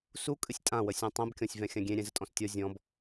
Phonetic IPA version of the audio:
su kʼɨsʲtʼãwəsʲɔ̃ tˤɛ̃bkʲɔ̃sʲvɛ̃ xʲãɡʲẽ ɾʲɛ̃zətʼɔ̃stʲɔ zʲɔ̃b

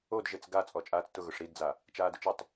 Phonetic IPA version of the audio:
odʒet͡s ɡat͡sʼɔ t͡ʃʼaːt͡stʊ ɣʊʂɾidd͡za | t͡ʃaːdʊt͡ʃɪtˤ

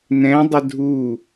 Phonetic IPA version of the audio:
nɛ̃dˤə dʱu

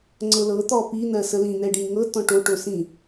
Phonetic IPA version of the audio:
ŋ͡ǀɤlɤ t̪ɔpi n̪ɜsəlĩ n̪ɛɖĩŋɤ tɔ̃ʈo ʈosĩ

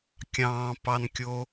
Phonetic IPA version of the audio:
kʲɑ̃ːpɑnkʲo

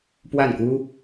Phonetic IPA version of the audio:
pwa˥˩nku˥

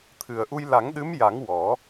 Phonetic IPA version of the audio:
t̪ʰɨ˨˩ə̯ʔu˧j la˨˩˦ŋɗɨ˧˥mja˨˩˦ŋ wɔ˨˩˦

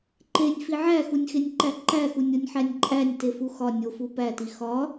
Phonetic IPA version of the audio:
ǃenʲfi ʕæxunʲxenʲǃæ ǃæxunʲonʲħænʲ ǃʼænʲtefu xɒ nʲofu pæti xɒ

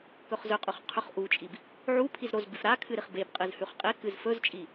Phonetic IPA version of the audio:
kɵχzɵqʼʉχ qʰɵχʔut͡ʃʼib | ʕu pʰizɾozbʉf ɾakʰɨ ɾiχbebqʼɨz hʉχqʼekɨz fɵzt͡ʃʼi

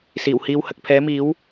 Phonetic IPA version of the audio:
siː˨˩whiː˧w hɐ˨k̚pʰɛː˨˥miː˨˥w

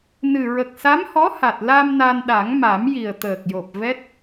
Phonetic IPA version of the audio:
nɨ˨˩ ɹə˨˩k̚sa˧˥mhɔ˧˥ ha˨˩t̚ la˧m na˧nɗa˨˩˦ŋma˨˩˦mji˨˩ə̯ t̪əː˨˩k̚jo˨˩p̚ vɛ˦˥t̚

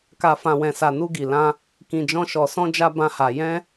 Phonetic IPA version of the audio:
ka˨fã˨wɛ̃˨ sa˨nu˧ɡi˨lã˧ | kĩ˨d͡ʒɔ̃˧ʃɔ˨ sɔ̃˧d͡ʒa˧ bã˦ha˧ jɛ̃˦

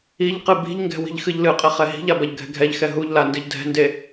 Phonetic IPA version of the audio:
iʎqɨ bi̤ʎŋɡɛ̤ wi̤ʎxɨʎlɨqʼɘ χɛɦi̤ʎa bɐʎɡʱɛ̤ɡʱɛʎxɛ ɦuʎla ndɨʎdʱɛ̤nde

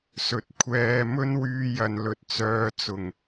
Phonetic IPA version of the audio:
sɵ˨t̚ kʷʰɛː˧ mɵ˥nwyː˧jɐ˨n lɵ˨t̚t͡sœː˨˧t͡sʊ˨˩ŋ

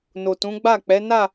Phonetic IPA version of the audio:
no˨tũ˨˦ ɡ͡ba˦˨k͡pɛ˨˦ na˦˨

